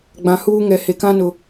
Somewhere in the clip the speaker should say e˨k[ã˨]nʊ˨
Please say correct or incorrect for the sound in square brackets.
incorrect